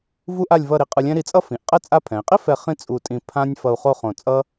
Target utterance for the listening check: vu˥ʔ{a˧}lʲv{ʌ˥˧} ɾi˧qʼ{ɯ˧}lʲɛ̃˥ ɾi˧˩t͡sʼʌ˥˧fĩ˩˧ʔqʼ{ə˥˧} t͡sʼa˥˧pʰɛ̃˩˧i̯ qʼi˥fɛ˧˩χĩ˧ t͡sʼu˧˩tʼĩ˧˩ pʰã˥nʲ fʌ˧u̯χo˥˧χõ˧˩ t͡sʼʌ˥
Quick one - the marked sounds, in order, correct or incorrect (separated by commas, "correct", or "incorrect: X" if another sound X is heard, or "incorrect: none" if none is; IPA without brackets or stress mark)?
incorrect: a˥˧, correct, correct, incorrect: ɛ˥˧